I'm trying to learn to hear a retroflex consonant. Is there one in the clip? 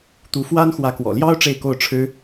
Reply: yes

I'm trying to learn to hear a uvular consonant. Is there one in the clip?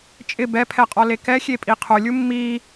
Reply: yes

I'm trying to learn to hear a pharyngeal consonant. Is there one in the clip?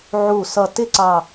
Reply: yes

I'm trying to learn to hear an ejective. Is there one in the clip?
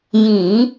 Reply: no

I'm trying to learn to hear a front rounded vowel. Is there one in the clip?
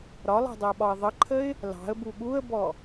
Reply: no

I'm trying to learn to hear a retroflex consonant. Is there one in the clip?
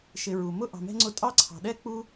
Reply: no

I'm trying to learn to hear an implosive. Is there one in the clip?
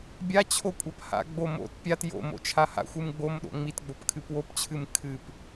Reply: yes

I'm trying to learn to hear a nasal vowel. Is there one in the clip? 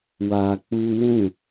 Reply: yes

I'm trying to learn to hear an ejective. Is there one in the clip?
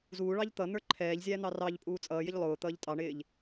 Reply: yes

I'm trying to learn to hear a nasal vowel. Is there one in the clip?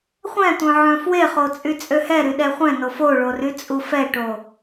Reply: yes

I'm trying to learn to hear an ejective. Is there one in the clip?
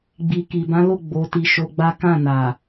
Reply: no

